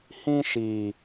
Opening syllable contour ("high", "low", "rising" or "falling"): high